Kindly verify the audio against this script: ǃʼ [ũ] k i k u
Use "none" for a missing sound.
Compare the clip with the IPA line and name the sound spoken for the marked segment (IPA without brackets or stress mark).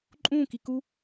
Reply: ũ